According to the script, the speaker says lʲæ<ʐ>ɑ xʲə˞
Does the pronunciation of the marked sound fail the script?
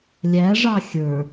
no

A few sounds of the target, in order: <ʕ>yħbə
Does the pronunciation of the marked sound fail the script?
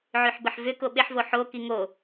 no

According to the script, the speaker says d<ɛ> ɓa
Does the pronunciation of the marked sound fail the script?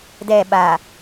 no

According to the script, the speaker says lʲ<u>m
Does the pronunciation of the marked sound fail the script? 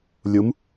no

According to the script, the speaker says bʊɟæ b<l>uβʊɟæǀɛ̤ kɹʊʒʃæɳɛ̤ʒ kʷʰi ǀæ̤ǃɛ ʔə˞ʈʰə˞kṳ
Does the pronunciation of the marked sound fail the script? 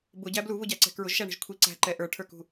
no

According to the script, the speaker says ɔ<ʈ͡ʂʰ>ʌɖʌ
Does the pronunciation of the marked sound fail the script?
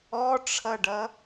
no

